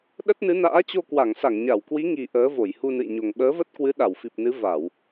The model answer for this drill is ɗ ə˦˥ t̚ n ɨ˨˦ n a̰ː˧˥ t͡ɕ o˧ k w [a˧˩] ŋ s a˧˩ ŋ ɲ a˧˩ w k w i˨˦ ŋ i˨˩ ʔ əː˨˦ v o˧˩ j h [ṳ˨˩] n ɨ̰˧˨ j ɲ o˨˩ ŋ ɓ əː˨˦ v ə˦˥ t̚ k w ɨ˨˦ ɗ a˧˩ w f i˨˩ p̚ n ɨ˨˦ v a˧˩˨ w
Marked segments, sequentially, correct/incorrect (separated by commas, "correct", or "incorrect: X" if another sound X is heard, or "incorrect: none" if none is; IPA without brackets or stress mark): correct, incorrect: u˧